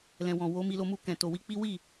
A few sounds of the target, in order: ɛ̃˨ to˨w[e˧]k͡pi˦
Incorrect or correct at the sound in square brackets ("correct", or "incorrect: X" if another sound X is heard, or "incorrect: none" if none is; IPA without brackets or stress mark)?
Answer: incorrect: i˧